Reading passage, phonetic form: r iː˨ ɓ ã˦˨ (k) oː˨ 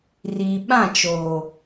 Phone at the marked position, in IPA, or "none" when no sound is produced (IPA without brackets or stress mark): t͡ʃ